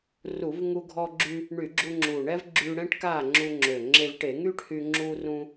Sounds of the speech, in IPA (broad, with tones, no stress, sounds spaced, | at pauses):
r u˧˩˧ v ŋ u˧ ɡʱ ɔ˧ ɡ͡ǁ y˧ | ɳ y˧˩˧ ɡ͡ǁ u˧ ŋ͡ǁ u˨˩ ɳ ɛ˥ v ɡ͡ǁ yː˧ ɽ ɛ̃˥ ʈ k aː˥˨ ŋ͡ǁ u˧ ŋ͡ǁ ø˨˩ ŋ͡ǁ e˧ v ʈ e˧˩˧ ŋ yː˥ ʈ h y˧ ŋ͡ǁ uː˧ r ũ˧